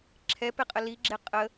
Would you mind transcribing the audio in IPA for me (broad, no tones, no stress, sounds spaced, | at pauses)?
ǁʰ ɛ p e qʼ ə l i ɡ͡ǁ e qʼ ə